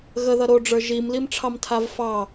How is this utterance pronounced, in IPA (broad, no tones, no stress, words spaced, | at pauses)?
ɣəðʌ ɾoɖ͡ʐə˞ ʒimlimʈ͡ʂʰɑmtʰav fɑ